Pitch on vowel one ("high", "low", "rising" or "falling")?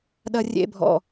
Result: low